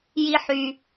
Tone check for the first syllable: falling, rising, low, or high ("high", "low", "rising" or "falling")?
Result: high